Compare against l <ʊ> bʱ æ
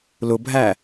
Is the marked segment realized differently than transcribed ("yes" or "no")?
no